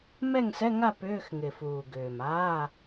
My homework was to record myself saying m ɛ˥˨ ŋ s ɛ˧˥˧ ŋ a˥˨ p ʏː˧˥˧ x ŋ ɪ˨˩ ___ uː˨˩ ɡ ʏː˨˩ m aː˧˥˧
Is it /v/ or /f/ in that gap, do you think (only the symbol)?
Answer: f